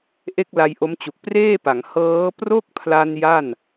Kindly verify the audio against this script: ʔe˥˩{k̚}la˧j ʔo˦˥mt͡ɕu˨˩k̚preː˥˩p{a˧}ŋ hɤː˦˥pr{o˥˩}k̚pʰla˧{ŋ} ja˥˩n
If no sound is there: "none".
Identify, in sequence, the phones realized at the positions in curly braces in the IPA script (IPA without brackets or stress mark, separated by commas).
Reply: k̚, a˩˦, o˥˩, n